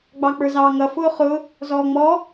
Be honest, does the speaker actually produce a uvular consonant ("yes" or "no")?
yes